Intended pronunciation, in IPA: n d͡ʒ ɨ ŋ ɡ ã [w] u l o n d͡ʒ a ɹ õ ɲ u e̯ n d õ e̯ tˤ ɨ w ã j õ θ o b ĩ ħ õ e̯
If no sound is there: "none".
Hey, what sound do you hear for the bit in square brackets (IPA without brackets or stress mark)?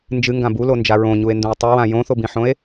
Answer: b